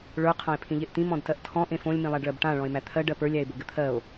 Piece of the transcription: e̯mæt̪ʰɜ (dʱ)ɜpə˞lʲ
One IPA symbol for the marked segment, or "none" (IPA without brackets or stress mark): ɖ